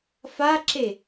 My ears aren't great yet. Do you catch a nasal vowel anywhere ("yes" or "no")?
no